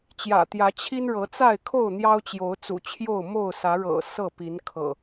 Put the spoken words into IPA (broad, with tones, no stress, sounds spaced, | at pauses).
t͡ɕ j ä̰˨˩ t̪ j ä˨˦ t͡ɕʰ i˦ n ɻ ɤ˨˦ t͡s a˥˨ ɪ̯ kʰ o˥˨ ʊ̯ n̪ j ɑ˦ ʊ̯ t͡ɕ j o˨˦ ʊ̯ t͡s ṵ˨˩ t͡ɕʰ j o˥˨ ʊ̯ m o˥˨ ʊ̯ s ä˨˦ ɻ ɤ̰˨˩ s ɤ˥˨ p i˨˦ n kʰ ɤ̰˨˩